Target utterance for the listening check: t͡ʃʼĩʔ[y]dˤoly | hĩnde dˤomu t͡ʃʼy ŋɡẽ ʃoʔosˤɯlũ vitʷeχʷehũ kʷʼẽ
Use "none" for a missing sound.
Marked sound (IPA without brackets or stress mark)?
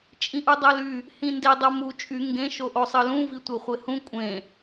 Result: u